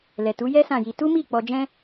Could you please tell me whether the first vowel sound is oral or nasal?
oral